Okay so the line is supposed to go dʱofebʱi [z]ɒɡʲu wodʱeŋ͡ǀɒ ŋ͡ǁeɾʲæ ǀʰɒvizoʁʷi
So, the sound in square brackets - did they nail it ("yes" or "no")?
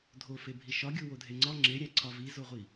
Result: no